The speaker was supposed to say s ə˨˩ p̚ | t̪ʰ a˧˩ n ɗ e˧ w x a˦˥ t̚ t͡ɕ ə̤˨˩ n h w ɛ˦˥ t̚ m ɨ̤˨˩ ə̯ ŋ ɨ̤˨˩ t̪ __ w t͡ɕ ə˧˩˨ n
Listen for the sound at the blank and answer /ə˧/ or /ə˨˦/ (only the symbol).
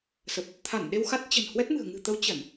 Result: ə˨˦